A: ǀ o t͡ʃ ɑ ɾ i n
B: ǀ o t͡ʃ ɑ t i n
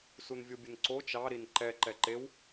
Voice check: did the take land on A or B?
A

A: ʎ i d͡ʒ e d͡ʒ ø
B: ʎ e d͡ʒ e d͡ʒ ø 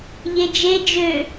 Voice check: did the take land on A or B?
B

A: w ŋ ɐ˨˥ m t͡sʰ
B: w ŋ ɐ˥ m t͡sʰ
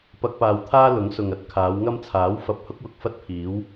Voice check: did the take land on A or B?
B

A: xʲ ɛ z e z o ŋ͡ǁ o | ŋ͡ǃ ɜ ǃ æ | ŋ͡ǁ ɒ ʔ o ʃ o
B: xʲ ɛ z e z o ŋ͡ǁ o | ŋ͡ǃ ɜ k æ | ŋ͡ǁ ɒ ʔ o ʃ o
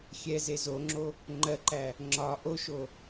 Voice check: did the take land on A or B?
A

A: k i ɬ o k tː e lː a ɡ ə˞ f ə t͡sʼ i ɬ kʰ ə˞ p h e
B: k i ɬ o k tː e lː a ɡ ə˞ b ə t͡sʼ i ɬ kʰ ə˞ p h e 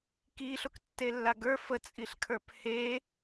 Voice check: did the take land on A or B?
A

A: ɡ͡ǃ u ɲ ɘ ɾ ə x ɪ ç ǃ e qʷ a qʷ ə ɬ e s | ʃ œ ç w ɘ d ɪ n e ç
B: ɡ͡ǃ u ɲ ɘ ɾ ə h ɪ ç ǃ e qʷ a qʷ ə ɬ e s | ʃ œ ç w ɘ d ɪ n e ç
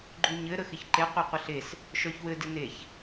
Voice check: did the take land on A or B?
A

